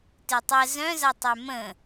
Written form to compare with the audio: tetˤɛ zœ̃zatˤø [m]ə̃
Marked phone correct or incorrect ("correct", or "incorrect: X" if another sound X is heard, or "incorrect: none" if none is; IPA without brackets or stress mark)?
correct